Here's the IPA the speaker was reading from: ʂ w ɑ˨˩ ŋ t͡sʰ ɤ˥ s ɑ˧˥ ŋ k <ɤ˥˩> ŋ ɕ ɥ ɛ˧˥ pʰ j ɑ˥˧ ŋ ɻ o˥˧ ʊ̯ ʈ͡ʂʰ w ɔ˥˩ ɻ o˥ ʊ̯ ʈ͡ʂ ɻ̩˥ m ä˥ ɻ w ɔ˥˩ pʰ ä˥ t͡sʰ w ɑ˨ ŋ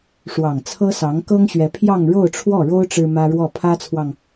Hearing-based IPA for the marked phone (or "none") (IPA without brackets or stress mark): ɤ˥